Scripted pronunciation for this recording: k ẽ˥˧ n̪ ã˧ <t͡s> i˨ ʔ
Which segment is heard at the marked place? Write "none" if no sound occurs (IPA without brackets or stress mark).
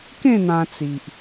t͡s